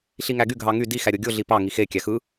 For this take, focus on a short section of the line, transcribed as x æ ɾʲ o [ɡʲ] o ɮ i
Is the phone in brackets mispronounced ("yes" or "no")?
no